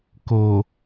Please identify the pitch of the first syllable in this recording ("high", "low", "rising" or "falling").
low